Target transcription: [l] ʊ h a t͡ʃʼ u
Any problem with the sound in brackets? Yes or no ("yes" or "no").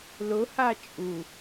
no